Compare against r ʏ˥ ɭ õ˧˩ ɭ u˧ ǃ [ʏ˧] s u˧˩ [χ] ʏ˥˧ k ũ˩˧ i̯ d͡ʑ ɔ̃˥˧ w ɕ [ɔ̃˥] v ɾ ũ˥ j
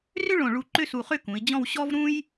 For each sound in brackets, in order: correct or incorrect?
incorrect: ʏ˥˧, correct, incorrect: ɔ˥

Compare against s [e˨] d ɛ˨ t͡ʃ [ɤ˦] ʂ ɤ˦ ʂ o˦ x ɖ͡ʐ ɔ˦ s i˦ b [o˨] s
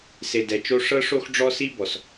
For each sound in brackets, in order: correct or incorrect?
correct, incorrect: o˦, incorrect: ɔ˨

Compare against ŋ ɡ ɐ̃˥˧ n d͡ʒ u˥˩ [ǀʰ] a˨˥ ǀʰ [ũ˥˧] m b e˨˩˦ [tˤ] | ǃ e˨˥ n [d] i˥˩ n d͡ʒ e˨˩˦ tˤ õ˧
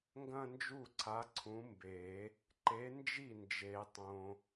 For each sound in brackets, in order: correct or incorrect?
correct, incorrect: ũ˨˥, incorrect: none, incorrect: d͡ʒ

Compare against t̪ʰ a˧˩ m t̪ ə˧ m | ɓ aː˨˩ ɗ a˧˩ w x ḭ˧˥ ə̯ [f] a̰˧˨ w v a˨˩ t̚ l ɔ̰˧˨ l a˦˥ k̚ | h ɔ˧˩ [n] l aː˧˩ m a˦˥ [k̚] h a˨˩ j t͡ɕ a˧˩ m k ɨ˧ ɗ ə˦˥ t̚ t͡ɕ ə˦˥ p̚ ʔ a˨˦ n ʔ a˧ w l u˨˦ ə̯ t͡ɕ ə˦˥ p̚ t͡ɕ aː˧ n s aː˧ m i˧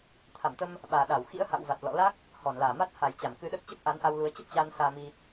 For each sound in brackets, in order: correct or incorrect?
incorrect: h, correct, incorrect: t̚

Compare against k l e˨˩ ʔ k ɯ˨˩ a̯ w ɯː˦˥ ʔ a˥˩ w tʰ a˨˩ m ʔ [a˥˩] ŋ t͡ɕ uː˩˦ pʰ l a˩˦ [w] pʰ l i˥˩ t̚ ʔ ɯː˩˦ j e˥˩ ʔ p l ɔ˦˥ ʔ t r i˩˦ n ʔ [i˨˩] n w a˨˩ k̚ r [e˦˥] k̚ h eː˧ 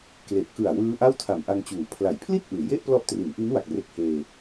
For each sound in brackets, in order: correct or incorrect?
incorrect: a˧, incorrect: j, incorrect: i˦˥, correct

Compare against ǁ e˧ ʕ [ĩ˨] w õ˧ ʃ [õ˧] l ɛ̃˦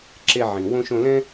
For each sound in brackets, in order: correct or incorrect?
correct, correct

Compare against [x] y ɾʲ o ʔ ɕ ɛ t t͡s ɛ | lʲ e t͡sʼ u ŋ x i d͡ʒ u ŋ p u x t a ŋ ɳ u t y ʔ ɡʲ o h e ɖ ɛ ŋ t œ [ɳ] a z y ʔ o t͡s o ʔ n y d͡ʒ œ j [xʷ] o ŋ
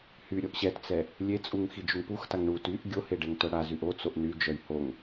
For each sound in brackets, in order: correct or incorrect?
incorrect: h, incorrect: ɽ, incorrect: h

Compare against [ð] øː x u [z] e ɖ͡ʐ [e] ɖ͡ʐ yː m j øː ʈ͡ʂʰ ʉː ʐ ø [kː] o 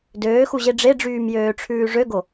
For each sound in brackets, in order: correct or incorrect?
incorrect: d, incorrect: ʑ, correct, incorrect: ɡ

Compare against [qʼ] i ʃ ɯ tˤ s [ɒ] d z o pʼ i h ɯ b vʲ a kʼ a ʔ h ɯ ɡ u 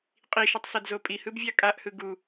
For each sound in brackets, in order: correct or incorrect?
correct, incorrect: ʌ

